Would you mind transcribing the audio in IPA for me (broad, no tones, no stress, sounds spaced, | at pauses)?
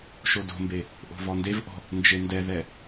ʃ o d o̤ m b e | ʔ o̤ v ɔ n d e v ʔ ɔ̤ | n d͡ʒ e n d ɛ ð ɛ